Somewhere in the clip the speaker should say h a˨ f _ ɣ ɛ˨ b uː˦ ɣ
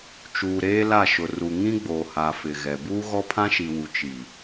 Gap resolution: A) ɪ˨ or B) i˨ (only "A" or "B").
A